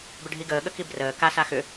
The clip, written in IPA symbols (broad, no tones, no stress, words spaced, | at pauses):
bʏɖʱiɡəː ɠəkibrəː ka saxʏ